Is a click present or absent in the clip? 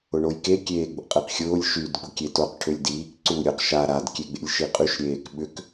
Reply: present